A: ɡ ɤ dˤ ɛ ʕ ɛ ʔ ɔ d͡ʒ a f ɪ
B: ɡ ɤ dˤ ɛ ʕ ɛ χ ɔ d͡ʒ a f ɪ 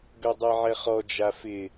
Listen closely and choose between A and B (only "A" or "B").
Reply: B